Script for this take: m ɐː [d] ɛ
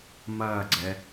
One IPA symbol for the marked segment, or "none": ɡ͡ǀ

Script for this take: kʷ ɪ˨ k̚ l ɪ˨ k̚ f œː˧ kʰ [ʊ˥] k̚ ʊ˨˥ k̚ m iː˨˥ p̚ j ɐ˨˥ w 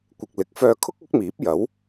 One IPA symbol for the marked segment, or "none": ʊ˥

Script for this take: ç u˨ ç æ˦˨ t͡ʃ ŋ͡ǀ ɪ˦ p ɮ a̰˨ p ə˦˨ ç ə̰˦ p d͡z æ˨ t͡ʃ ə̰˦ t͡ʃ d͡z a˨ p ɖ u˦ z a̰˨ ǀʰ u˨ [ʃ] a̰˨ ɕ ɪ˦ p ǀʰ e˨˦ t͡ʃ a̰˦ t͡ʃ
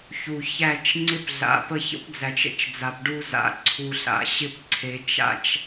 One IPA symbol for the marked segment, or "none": ɬ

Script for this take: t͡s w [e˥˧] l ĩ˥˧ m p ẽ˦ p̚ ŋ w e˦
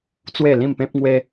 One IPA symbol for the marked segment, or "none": e˥˧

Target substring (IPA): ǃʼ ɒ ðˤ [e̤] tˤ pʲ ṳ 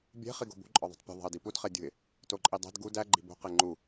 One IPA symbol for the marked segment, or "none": i̤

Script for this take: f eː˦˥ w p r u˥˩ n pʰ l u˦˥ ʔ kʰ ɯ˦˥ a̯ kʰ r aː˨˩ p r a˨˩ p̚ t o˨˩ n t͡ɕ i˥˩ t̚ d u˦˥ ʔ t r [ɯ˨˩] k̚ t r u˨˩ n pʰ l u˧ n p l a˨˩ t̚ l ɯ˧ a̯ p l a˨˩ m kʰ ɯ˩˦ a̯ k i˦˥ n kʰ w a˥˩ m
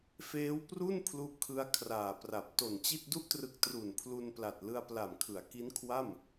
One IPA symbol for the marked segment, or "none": ɯ˨˩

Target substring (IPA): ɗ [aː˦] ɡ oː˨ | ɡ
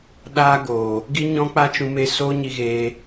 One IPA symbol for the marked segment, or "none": aː˧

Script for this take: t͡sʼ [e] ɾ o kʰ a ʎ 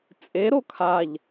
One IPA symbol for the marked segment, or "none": e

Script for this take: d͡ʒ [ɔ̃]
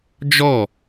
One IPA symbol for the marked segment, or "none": ɔ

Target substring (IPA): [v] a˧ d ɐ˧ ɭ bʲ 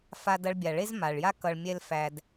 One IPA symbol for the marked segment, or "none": f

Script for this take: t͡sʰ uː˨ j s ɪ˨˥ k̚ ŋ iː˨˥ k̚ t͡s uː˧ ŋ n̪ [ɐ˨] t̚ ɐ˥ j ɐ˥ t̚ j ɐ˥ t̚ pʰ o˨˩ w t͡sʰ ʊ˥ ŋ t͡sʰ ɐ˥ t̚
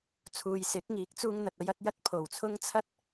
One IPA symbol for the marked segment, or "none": ɐ˨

